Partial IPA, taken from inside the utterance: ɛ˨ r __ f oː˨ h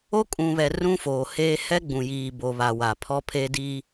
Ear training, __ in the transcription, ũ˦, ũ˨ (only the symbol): ũ˦